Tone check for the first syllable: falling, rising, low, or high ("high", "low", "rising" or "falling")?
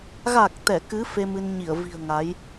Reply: low